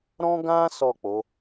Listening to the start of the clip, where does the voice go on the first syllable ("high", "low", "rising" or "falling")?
high